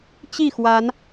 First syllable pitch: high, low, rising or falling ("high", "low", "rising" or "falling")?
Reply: falling